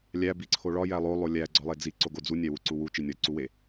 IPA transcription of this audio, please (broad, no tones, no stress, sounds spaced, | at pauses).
lʲ æ b i ǀʰ o ɭ ɒ j æ lˠ o lˠ o lʲ æ ɡ͡ǀ ɒ lˠ e d͡z i ǀ o ɡ o d͡z u nʲ æ w u ǀ u w u t͡ʃ i nʲ ɒ ǀ u w e